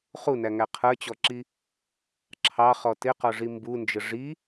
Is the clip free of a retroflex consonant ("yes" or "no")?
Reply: no